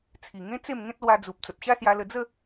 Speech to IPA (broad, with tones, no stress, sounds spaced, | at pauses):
t͡sʰ i˨˩ ŋ ẽ˦ t͡s e˥˧ m ŋ ẽ˦ t̚ l w a˧ d͡z u˨ p̚ t͡s ə˨ p̚ ɕ a˦ s j a˧ l ə˧ d͡z ə˥˧